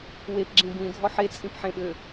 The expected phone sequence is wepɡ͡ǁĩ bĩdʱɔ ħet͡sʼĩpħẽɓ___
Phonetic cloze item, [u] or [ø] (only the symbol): ø